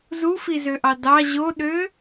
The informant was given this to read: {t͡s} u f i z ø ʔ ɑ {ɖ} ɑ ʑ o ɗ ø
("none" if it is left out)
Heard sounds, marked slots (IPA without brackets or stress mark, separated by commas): z, d